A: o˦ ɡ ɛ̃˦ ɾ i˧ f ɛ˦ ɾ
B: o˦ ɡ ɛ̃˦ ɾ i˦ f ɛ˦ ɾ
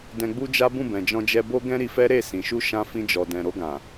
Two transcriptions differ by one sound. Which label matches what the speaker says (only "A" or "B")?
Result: A